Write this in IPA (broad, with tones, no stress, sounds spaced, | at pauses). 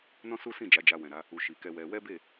n ɔ̃˦ s u˦ s ĩ˦˨ d͡ʒ a˨˦ d͡ʒ a˧ w ɛ̃˨ ɾ a˨˦ | u˨ ʃ i˨ k ɛ˧ w ɛ˧ w ɛ˦ b e˦˨